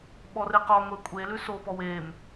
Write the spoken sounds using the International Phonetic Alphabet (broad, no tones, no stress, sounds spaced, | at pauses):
ɓ ɔ r e q ɔ ŋʷ e kʷʼ e l ʉ s o p ɔ w e m